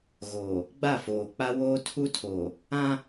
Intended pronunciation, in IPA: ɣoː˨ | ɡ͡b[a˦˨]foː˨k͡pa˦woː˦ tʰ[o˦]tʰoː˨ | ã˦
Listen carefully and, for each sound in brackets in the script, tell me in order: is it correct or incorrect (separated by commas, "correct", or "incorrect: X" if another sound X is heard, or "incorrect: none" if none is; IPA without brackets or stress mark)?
correct, incorrect: u˦